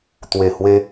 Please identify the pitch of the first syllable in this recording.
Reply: low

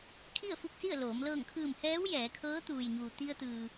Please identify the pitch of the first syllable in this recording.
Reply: falling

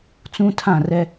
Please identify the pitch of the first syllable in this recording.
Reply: high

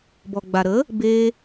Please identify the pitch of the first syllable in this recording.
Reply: low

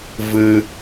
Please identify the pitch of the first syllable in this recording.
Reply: low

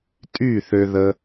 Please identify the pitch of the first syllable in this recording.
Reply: falling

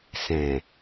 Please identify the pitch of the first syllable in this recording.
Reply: low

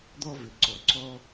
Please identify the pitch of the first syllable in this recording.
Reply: high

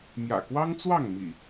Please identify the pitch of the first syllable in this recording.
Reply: low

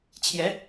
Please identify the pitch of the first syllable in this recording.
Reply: rising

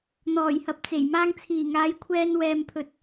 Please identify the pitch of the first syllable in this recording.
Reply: low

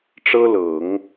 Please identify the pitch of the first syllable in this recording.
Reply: high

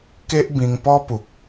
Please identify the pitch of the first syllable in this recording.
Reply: high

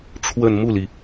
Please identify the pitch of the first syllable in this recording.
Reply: falling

